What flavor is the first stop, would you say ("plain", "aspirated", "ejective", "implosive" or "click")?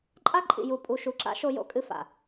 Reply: click